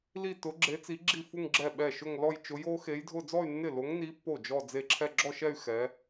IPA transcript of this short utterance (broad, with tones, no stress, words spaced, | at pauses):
li˥˧tʊ˧˥ɡ͡ǁe˧˥t͡si˧˥ ɡ͡ǁi˥˩fu˥˧ŋ ɡ͡ǁɛ˥˩ɓɛ˥˩ʃʊ˥˧ŋlɔ˥˧j t͡ʃʊ˧˥jo˧˥xe˧˥jdʱʊ˥˧ d͡zɔ˥˧y̯nːɪ˥˩lo˧˥ŋni˧˥ pːo˥˩d͡ʒɔ˥˧ d͡ze˥˩ǁʰɛ˥˧ ɡ͡ǁɔ˥˧ʃɛ˥˧y̯ xɛ˧˥